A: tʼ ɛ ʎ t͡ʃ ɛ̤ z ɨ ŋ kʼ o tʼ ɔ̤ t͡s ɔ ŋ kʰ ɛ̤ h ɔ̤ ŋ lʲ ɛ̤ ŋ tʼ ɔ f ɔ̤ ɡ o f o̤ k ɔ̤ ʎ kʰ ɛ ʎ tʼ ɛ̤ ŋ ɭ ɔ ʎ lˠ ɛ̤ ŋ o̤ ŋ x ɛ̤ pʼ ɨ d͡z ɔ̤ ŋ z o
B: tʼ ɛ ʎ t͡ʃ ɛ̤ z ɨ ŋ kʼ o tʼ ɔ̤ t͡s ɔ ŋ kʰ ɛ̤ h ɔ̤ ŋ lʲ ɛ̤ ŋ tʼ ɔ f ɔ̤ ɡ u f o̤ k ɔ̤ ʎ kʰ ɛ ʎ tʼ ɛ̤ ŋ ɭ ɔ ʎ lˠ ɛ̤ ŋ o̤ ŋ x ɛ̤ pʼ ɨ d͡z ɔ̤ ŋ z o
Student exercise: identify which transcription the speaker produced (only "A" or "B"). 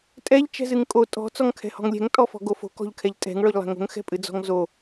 A